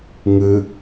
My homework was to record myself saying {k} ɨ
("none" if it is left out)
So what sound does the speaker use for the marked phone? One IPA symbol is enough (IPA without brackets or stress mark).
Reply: ŋ